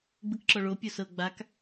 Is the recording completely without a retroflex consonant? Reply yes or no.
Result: no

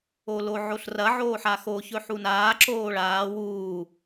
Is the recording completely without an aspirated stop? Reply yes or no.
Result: yes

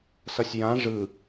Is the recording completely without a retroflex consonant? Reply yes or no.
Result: no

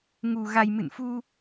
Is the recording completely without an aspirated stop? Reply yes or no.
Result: yes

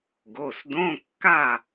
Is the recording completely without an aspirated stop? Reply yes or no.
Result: yes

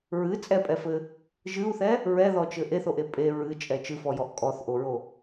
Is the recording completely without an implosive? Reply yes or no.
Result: yes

